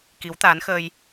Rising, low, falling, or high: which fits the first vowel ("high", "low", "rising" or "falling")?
rising